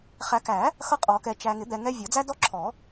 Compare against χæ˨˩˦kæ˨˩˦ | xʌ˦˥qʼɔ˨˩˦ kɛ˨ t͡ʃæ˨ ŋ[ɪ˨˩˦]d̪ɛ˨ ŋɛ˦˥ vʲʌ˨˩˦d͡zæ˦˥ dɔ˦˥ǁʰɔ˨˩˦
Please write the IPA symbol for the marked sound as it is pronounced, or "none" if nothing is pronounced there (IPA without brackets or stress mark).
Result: ɪ˨˩˦